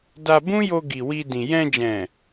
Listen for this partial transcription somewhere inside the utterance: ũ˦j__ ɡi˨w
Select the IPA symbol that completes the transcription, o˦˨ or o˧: o˧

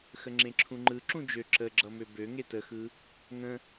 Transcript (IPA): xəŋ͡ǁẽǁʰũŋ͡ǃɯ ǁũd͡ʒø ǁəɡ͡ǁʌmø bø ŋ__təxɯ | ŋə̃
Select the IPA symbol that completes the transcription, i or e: e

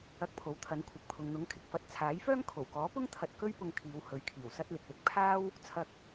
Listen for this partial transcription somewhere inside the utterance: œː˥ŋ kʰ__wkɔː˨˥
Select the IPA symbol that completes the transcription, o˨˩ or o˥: o˨˩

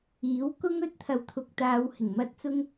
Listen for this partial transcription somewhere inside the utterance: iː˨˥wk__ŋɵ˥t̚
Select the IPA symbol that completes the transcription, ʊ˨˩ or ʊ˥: ʊ˥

